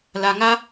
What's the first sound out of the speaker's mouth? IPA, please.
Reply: l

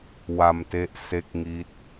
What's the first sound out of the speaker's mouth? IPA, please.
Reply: w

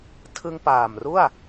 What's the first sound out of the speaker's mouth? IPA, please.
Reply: tʰ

